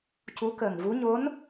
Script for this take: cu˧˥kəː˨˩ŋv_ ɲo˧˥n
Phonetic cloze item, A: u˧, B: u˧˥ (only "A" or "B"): B